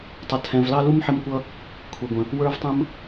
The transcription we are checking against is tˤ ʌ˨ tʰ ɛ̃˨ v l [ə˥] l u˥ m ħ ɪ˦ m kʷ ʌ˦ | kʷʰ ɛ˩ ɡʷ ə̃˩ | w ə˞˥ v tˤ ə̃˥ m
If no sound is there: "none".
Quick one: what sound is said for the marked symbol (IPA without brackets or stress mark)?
ɑ˥